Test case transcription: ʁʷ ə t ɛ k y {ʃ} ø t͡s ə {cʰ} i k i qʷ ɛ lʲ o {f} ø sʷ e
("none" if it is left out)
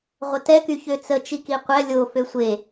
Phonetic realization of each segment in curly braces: ç, t͡ʃ, f

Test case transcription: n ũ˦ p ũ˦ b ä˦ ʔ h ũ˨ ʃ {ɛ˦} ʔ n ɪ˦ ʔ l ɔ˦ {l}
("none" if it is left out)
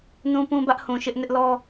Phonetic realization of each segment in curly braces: ɪ˦, none

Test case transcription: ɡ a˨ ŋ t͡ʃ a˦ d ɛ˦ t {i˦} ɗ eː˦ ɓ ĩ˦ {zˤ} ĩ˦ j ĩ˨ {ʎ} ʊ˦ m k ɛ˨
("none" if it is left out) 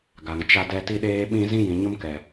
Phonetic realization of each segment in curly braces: i˦, z, ɲ

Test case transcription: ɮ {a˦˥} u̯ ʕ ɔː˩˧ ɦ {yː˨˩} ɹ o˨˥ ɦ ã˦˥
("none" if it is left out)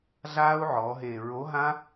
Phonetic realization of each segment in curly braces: aː˦˥, eː˨˩

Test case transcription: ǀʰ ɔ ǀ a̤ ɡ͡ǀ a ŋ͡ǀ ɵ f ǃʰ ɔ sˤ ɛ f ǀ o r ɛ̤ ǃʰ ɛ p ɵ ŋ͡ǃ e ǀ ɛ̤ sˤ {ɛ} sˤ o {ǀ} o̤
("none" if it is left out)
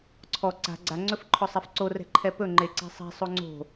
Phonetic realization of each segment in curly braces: ɛ̤, ŋ͡ǀ

